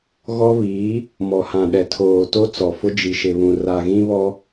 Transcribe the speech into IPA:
ɣɔ˦βiː˨˦ | mɔ˨hã˨ɗɛ˨tʰoː˨ to˦ t͡sɔ˨fʊ˦ d͡ʒi˨ʃɪ˨βũ˨ ra˨ɣĩ˦βɔ˦

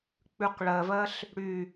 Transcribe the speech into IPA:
k͡pʉqɭɜvɜɬ | ɽy

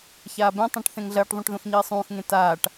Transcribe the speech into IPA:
çaːbẽtˤẽʈ θẽŋɮɐːʈðˤũʈ ðõxɲiːsˤũːxŋẽ taːʈ

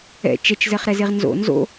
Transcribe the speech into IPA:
ɛ̰ t͡ʃɛt͡ʃzɛχɾɛ zeʁnzo̰ nzo̰

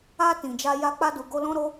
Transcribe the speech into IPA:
a˧ tĩ˨d͡ʒa˧ ja˧ k͡pa˧du˨ɡo˧ lɔ̃˧ɾo˧

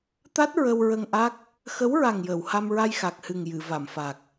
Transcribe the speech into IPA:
t̪a˦˥t̚ ɹə˧wɹə˧ŋʔa˦˥k̚ | xə˧˥wɹa˨˩ŋ jəː˨˩˨wha˧mɹa˧j xa˨˩k̚hɨ˨˩ŋ jɨ˨˩˨ va˨˩˨mfa˨˩k̚

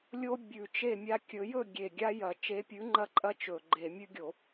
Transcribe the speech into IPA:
lʲo˦ bʲʉ˨˩t͡ʃe˥˩mʲa˦kʲɵ˨˥ jɵ˥˩ɡʲe˨˩ ɡʲa˦jɐ˧˩˧ t͡ʃe˨˥pʲʉ˨˥ŋ͡ǃɐ˦ ǃʼɐ˦ t͡ʃɵ˨˩ɡ͡ǃe˧˩˧mʲʉ˦ɡʲo˧˩˧

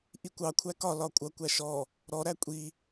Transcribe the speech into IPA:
ʔikʷɑ kʷʰækɒ lɒkʷʼʌ kʷæʃɔ | ɾɔ ɾækʷʼi

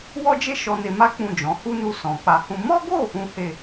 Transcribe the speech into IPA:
wɔ˦d͡ʒe˦ ʃɔ˧ne˧ma˦ k͡pũ˦˨d͡ʒɔ̃˨˦ hu˦nu˧ sɔ̃˨k͡pa˧hũ˦ mɔ˦ɡo˦˨ | ũ˦he˦˨

